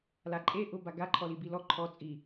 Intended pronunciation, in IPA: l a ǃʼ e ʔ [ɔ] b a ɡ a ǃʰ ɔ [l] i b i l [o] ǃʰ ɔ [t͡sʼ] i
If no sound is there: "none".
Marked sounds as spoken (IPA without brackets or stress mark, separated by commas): ʊ, l, ɔ, t͡sʼ